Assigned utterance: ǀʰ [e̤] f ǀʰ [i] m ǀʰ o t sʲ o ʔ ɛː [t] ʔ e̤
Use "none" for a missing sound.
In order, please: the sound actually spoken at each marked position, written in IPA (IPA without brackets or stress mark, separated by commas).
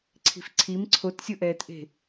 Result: i̤, i, t